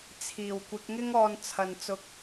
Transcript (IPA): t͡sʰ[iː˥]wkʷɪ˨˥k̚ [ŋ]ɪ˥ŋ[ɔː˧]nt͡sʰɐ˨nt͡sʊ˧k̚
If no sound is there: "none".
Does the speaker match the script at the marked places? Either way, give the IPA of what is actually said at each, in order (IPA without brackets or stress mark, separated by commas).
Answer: iː˨˩, ŋ, ɔː˧